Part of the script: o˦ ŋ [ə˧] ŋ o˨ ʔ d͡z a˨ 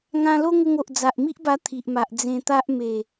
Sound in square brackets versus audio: correct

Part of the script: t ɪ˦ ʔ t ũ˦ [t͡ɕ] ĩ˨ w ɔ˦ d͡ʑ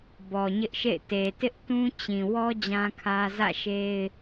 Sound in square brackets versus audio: correct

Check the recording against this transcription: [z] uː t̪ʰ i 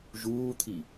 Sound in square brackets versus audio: incorrect: ʒ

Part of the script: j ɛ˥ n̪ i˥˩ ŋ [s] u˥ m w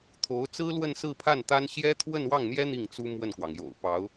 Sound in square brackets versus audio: incorrect: t͡s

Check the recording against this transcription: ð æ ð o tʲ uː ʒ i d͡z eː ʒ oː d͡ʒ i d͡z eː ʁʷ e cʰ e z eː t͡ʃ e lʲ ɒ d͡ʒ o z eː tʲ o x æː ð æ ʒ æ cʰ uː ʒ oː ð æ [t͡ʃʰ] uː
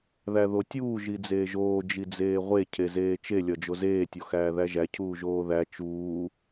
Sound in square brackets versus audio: incorrect: t͡ʃ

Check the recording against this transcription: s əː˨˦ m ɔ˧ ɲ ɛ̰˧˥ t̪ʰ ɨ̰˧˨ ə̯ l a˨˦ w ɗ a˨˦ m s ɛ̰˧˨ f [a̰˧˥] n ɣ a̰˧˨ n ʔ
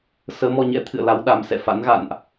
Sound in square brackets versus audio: correct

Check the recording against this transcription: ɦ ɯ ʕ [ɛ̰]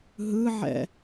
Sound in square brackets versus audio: correct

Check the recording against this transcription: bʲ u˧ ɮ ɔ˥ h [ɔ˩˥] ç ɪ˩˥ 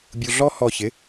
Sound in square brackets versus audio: incorrect: ɔ˧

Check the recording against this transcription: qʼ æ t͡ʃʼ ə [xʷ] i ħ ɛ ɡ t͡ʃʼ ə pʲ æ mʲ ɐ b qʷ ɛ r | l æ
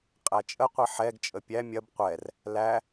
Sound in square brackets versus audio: incorrect: qʷ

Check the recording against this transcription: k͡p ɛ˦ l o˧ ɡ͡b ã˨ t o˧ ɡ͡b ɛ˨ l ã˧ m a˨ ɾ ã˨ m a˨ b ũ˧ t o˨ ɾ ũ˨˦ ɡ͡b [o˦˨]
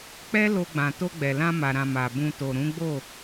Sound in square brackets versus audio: correct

